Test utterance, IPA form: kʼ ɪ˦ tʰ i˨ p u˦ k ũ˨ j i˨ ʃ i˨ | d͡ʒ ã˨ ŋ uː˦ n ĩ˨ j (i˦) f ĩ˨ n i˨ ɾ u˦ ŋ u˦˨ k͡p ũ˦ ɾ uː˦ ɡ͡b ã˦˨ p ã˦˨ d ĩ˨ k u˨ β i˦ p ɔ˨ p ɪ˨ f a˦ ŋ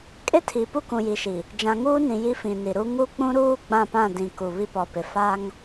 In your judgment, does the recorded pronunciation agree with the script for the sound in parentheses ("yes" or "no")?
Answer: yes